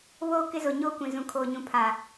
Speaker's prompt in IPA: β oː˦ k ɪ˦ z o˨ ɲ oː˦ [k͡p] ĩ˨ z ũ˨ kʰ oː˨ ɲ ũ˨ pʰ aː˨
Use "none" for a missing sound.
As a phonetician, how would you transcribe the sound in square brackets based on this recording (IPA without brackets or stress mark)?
kʷ